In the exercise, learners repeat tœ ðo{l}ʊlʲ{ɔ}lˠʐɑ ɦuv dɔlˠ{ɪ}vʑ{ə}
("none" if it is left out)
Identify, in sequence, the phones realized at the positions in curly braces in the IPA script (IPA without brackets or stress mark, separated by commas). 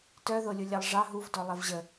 lʲ, ɑ, ɛ, ə